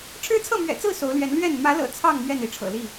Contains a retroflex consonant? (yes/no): yes